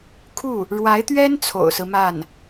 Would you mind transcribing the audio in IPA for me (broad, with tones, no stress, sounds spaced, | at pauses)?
kʰ u˥˩ | ɻ w a˧˥ ɪ̯ t̪ ɥ ɛ˥ n t͡sʰ o̰˨˩ ʊ̯ s ɹ̩˦ m a˥˩ n